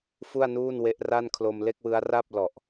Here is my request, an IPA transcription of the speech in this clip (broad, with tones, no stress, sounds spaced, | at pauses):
f u˥˩ a̯ n uː˥˩ n w e˦˥ ʔ r a˥˩ n kʰ l o˧ m l e˥˩ k̚ w ɯ˦˥ a̯ r a˥˩ p̚ l ɔ˨˩ ʔ